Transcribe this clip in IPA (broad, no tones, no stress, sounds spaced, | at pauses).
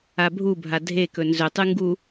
a bʱ u bʱ a dʱ e k ɵ n z ɵ tˤ ɨ ŋ ɡ u